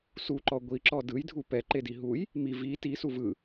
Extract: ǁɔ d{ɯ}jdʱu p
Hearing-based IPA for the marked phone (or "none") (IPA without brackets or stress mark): ɯ